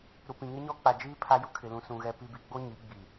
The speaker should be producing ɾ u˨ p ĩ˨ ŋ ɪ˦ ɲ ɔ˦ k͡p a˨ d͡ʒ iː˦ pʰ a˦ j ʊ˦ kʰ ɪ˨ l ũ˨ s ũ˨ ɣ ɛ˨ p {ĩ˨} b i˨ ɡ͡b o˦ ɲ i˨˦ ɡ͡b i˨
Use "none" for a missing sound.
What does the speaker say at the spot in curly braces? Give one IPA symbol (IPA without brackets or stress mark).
i˨